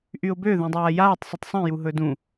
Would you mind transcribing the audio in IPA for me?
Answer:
ʔ y ʊ̯ b ø ð ũ dˤ aː j aː tˤ sˤ u tˤ sˤ ɛ̃ j u ɦ ɵ d ũ

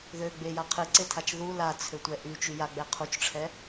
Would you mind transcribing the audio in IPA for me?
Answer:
ð ø ɡ͡b e j a qʰ ɨ ǀ e tʰ a t͡ʃ ð u l a t͡sʰ ø tʷ ɛ ʔ y t͡ʃ y j a ɡ͡b ɛ qʰ u t͡ʃ ʈ͡ʂʰ ɛ

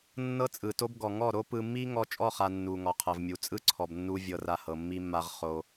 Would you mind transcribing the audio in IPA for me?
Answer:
nː ɤ˦ t͡sʼ ɯ˨ t o˦ b ɡ ɔ˨ ŋ ɔ˦˨ ɾ o˦ p ɯ˧ mː i˦ ŋ ɔ˧ t͡ʃʼ ɔ˦˨ χ a˨ nː u˨ ŋ ɔ˨ qʰ ɤ˨ v mʲ u˨ t͡sʼ ɯ˦ ǀʰ ɔ˨ b nː u˧ vʲ ɤ˧ r a˧ h ɤ˨ mː i˧ mː a˧ ʁ χ o˧

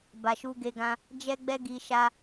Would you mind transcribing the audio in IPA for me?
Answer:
b a˨ ʃ u˧ ɡ e˧ ɡ ã˧ | d͡ʒ ɛ˦ ɡ͡b ɛ˦ ɡ i˧ ʃ a˧

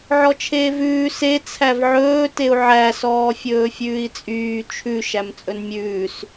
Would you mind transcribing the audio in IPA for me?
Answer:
ʕ ɔ t͡ʃʰ eː v ʉː s e t͡sʰ æ v ʕ ɵː t e u̯ ʕ æ s ɔː fʲ ɵː fʲ ʉː i̯ t͡sʼ yː t͡ʃʰ ʉ ʃ æ m t͡sʼ ɵ n mʲ ʉː s

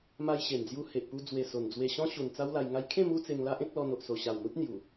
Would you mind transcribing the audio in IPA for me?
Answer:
m a˧ j ɕ e˨˩ n d͡z j u˧ h e˨ ʔ p u˧ d͡z w e˨˩ s o˨˩ n d͡z w e˧ ɕ ɔ̃˦ ɕ u˨˩ n t͡s a˦ w l a˧ j ŋ a˧ j kʰ ẽ˥˧ m u˦ t͡s e˧ ŋ l a˦ ʔ ẽ˦ k̚ l ɔ˧ n o˨ ʔ s o˨˩ ɕ a˨˩ w n̪ u˦ t̚ n̪ j u˨˩

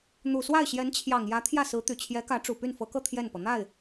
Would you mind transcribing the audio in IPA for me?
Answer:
n̪ u˨˩ s w a˥˩ ɪ̯ ɕ j ɛ˧˥ n t͡ɕʰ j ɑ˨˩ ŋ j ä˧˥ t̪ʰ j ä˥˩ s ɹ̩˧˥ t̪ y˨˩ t͡ɕʰ j ɛ˧˥ k ä˧˥ ʈ͡ʂ u˨˩ p y˥˩ n f ɤ˧˥ k ɤ˥˧ t̪ʰ j ɛ˥˩ n p ɤ˩ n̪ a˥˩ ɪ̯

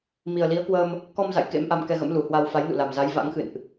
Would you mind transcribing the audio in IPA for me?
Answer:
m i˨˩ ə̯ l i˨˦ ə̯ k w əː˧ m | k ɔ˧ m z a̰˧˨ j k ḛ˧˥ m ʔ a˧ m k ɛ˧ ɣ ə̰˧˥ m l u˨˩ h w a˧ w f a˨˦ j n ṵ˧˨ l a˨˩ m z a˨˦ j v a̰˧˥ ŋ x ɨ̰˧˨ n ʔ

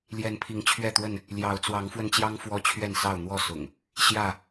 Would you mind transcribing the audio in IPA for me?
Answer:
l j ɛ˨˦ n pʰ i˨˦ ŋ t͡ɕʰ ɥ ɛ˥˨ t̪ w ə˥˨ n | l j ɑ˨˦ ʊ̯ t͡s w ɑ˨˦ ŋ f w ə˧ n t͡ɕ j ɑ˦ ŋ f w ɔ˦ t͡ɕʰ ɥ ɛ˥˨ n s ɑ˥˨ ʊ̯ n̪ w ɔ˥˨ s ʊ̰˨˩ ŋ | ɕ j ä˥˨

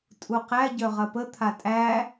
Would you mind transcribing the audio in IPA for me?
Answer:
tʼ u q æ ɟ œ ʁ ɐ p ə t̪ʰ a tʼ æ

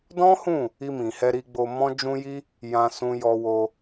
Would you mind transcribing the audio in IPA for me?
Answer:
d ɔ̃˦ h ũ˦˨ | i˧ m ĩ˨ h ɛ˧ ɾ i˧ ɡ͡b o˧ m ɔ̃˦ d͡ʒ ũ˦ j i˦ | j ã˧ s ũ˧ j ɔ˧ w o˧

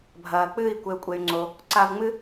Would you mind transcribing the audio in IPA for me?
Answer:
bʱ ɐː˨ k͡p ɨː˦˨ i̯ kʷ e˦ u̯ kʷʼ e˦ y̯ ŋ͡ǀ o˦ | ǀ a˧ v ŋ͡m ɨ˦

